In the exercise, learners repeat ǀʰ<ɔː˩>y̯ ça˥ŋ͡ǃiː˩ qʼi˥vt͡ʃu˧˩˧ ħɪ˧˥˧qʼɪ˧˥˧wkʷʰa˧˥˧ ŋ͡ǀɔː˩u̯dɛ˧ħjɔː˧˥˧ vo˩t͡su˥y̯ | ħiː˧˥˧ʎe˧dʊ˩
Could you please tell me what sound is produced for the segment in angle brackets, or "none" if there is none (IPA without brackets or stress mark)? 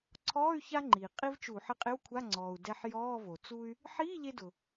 ɔː˧˥˧